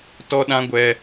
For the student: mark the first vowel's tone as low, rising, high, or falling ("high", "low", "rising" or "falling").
high